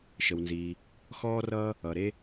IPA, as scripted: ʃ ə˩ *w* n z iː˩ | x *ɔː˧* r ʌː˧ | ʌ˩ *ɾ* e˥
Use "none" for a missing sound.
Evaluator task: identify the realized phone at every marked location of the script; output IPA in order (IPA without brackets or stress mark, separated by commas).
w, ɔː˧, ɾ